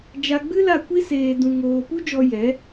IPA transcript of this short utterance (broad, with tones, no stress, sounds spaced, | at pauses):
d͡ʒ a˧ ɡ͡b ɨ˦ l a˦˨ kʷ i˦ s eː˧ d ũ˧ ŋ oː˧ p u˦ d͡ʒ ɔ˧ j ɛ˨˦